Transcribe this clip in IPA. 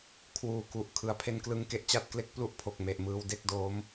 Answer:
kʰ w uː˨˩ k u˨˩ ʔ kʰ ɯ˩˦ a̯ pʰ e˧ n k l ɯ˦˥ ŋ k e˨˩ ʔ t͡ɕ a˥˩ t̚ k l e˦˥ k̚ p l u˥˩ ʔ pʰ o˨˩ k̚ m e˨˩ ʔ m ɯː˧ w d e˥˩ k̚ d oː˦˥ m

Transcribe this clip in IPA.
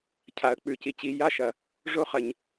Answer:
cʰ a˨˩˦ ə̯ k͡p ʉ˨˩ c i˨˦ t͡ɕ i˨˦ j a˧˥˧ ʃ ɐ˨˩ | ʐ o˦˥ χ ɐ˨˩ ɲ

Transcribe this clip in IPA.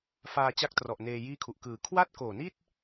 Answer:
f aː˧ t͡ɕ a˦˥ k̚ t r ɔ˨˩ ʔ n eː˧ j iː˥˩ kʰ u˨˩ ʔ k ɯː˩˦ kʰ w a˥˩ t̚ k oː˨˩ n i˥˩ t̚

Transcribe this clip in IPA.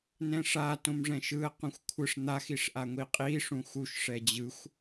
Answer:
n ɛ̃ ʂ a t õ m ʐ ɛ̃ ʃ ɯ ə̯ q ũ xʷ kʷʰ ɯ ʂ n̪ a x i ʂ ʔ a ŋʷ i qʼ i ʂ ũ x u ʃ ʂ ɛ d͡ʑ ɯ xʷ

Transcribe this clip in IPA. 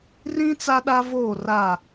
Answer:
r ĩ˦ t͡s a˦ ɗ a˦ v oː˦˨ r a˦˨

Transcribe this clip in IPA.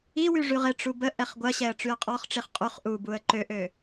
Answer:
i w y ʐ y ʁ ɪ ʈ͡ʂ u b ə ʔ ɛ χ ɡʷ ɐ ɕ ɛ ə̯ ʈ͡ʂ y ə̯ qʼ ɔ χ ʈ͡ʂ i χ qʼ y χ ʔ u b u ə̯ ǃ ø ʔ ø

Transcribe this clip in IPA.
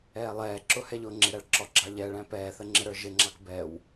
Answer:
ɛː lˠ ɛː ǁ ʊ h ɛ ʎ ʊː ŋ͡ǁ ɪ ɾ æ ɭ ǁ ɔ ɡ͡ǁ ɑ ʎ ɛ ɭ æ̃ p ɛː θ ə ŋ͡ǁ ɪ ɾ ə˞ ʒ ɪ ŋ͡ǁ ɑ k b ɛ w

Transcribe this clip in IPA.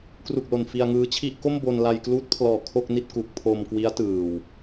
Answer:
k r u˨˩ k̚ l o˨˩ n f i˧ a̯ ŋ ɯː˧ t͡ɕʰ i˥˩ ʔ k o˥˩ m b o˧ n l a˧ j k l uː˦˥ t̚ pʰ l ɔː˨˩ kʰ o˥˩ k̚ n i˥˩ t̚ k u˨˩ k̚ pʰ o˧ m k w i˦˥ a̯ t ɯː˨˩ w

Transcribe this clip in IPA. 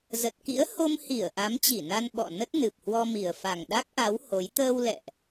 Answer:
z ə˨˩ t̚ k ḭ˧˥ ə̯ h o˧ m h i˧˩ ə̯ ʔ a˨˦ m t͡ɕ i˧˩ n a˧ n ɓ ɔ̰˧˨ n ə˦˥ t̚ n ɨ˨˩ p̚ h w ɔ˧ m i˨˩ ə̯ f a˨˩ ŋ ɗ a˦˥ k̚ ʔ a˨˦ w h o˨˦ j t̪ əː˧ w l ɛ̰˧˨ ʔ

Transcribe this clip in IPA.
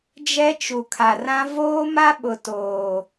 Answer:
d͡ʒ ɛ˦ t͡ʃ u˨ kʰ a˨ r ã˦ v oː˦ m a˦ ɓ ʊ˨ t oː˨

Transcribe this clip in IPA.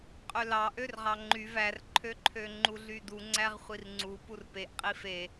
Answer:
qʼ ø l ɑ ʔ ø r ʁ ɑ ŋ͡ǃ y v æ r ǃʰ ø ǃʰ ø ŋ͡ǃ u ɮ y d u ŋ͡ǀ æ ʁ χʷ i r ŋ͡ǀ u p u r p e ʔ qʼ i f e

